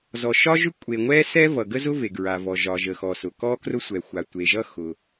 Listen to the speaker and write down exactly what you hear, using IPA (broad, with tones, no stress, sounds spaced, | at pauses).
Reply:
z ɔ˩ ʃ ɒ˥ ʒ ʏ˥ kʷʼ e˩ ŋʷ ɛ˥ s ɛ˥ v ʌ˩ ɡ ə˥ z ʊ˥ v e˩ ɡ ɹ a˩ v ɔ˩ ʒ ɒ˩ ʒ ə˩ x ɔ˩ s ʊ˩ k ɔ˥ k r ʊ˥ sʷ ɛ˩ xʷ a˩ tʷ e˩ ʒ ʌ˥ x ʊ˩